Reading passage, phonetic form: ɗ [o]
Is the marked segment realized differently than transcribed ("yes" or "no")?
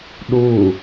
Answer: yes